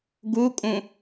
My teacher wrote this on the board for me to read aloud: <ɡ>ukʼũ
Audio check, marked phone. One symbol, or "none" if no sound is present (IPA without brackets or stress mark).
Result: ɡ